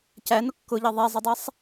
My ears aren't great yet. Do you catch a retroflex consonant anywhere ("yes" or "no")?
no